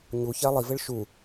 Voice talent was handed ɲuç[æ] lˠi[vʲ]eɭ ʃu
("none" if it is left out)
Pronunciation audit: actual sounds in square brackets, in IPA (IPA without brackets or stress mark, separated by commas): æ, v